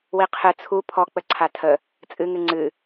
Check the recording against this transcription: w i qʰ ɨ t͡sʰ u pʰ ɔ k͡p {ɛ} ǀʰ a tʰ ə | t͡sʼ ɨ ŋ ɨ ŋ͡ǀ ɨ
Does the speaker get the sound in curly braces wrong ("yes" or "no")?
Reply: yes